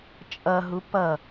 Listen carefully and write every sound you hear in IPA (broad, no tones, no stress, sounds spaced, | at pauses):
t͡ʃʼ ʌ ɦ u p ʌ